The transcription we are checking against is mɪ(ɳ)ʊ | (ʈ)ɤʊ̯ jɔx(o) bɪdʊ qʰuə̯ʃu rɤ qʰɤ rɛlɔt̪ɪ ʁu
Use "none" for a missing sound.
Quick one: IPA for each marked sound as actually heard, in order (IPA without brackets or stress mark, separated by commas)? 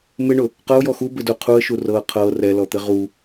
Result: ɳ, q, u